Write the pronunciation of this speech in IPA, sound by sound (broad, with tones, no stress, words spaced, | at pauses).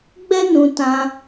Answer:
ɡ͡bɛ˦nũ˧tã˧